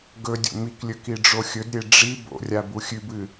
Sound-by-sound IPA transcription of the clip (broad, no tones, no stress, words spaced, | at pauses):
ɡɵdʲo̰ miklʲɵ kiɖ͡ʐoxʲɵdɾʲe ɖ͡ʐi bo̰rʲa buxʲʉbɨ